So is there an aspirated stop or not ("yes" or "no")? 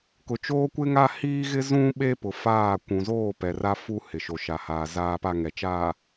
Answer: no